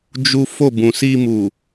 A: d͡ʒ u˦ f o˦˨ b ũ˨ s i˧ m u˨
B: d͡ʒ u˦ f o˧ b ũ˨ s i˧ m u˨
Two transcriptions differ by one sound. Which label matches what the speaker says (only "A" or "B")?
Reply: A